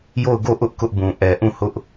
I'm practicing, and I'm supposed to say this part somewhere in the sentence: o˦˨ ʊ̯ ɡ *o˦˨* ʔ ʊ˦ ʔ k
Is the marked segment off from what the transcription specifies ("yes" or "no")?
no